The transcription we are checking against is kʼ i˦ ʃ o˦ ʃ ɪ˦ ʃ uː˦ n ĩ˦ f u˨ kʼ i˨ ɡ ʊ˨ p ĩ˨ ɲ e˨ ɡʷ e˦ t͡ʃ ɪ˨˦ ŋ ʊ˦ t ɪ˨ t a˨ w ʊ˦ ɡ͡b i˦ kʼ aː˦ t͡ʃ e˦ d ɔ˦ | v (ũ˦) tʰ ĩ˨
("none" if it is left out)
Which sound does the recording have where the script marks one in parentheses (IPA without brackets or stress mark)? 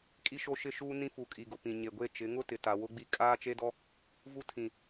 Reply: u˦